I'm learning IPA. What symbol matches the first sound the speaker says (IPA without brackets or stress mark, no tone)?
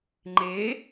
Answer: ŋ͡ǃ